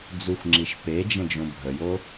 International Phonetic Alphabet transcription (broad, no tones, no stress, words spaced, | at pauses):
d͡zuxʷŋ͡ǁiʃ ped͡ʒə̃ d͡ʒõbʱəjo